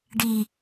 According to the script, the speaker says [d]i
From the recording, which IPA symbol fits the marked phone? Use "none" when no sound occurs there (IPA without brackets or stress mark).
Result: ɖ